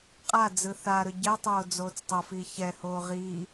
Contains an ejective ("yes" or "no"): yes